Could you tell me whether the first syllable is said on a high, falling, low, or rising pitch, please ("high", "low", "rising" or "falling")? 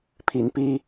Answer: rising